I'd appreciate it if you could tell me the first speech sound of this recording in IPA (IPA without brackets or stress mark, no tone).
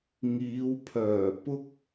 ŋ